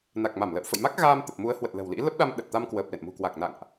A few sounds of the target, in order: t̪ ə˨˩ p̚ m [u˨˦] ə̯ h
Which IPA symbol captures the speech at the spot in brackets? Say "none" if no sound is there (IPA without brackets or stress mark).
u˨˦